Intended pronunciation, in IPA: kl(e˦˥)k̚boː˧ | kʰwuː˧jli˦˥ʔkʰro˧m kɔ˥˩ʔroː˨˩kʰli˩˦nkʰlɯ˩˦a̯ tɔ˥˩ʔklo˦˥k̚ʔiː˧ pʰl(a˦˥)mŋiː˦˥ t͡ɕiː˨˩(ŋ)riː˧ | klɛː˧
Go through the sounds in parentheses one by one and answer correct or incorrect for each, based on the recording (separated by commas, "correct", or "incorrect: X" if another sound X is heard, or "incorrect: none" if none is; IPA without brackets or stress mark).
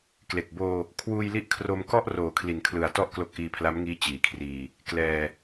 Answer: incorrect: e˨˩, correct, incorrect: kʰ